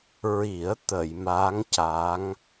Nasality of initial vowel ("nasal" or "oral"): oral